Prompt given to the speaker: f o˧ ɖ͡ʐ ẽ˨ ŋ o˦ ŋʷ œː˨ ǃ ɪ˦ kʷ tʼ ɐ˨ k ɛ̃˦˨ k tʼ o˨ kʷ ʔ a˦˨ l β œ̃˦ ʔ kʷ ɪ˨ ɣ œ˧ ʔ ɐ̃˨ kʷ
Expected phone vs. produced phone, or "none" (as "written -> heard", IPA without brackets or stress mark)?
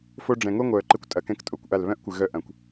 ẽ˨ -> ɛ̃˨